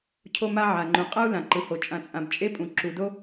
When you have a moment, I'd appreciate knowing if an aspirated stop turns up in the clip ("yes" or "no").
yes